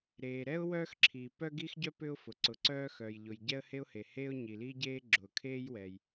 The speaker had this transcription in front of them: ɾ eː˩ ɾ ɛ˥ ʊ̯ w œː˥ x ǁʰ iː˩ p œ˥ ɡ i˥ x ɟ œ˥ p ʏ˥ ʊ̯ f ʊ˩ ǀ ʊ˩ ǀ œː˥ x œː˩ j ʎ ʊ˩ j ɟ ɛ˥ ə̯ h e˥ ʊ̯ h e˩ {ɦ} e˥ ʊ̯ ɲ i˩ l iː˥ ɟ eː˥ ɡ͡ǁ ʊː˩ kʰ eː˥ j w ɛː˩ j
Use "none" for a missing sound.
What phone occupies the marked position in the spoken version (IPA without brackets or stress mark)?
h